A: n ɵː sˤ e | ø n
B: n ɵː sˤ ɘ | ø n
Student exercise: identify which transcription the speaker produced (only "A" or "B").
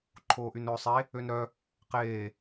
A